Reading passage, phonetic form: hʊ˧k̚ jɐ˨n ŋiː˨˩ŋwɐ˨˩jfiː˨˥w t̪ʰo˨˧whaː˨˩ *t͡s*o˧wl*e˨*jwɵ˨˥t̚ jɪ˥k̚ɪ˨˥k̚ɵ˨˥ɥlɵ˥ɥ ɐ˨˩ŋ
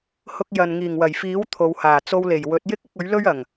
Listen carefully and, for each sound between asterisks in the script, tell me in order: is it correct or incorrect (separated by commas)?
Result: correct, incorrect